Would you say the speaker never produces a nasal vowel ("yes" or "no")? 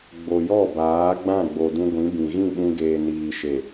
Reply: no